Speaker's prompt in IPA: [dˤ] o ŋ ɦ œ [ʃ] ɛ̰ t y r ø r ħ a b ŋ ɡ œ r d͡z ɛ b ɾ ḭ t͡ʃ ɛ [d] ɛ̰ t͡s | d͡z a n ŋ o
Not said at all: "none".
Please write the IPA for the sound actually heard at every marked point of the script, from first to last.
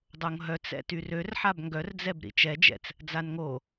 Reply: dˤ, t͡s, d͡ʒ

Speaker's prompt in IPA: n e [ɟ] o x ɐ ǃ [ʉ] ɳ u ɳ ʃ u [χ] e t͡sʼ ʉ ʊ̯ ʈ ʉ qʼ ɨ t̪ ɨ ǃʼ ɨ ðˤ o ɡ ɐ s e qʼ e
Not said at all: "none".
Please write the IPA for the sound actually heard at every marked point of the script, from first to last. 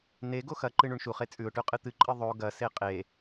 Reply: ɡ, ɨ, χ

